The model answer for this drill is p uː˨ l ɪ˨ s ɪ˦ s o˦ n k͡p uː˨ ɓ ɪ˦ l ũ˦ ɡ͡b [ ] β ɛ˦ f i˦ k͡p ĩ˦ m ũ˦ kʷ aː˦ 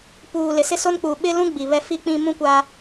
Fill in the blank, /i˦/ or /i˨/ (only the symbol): i˨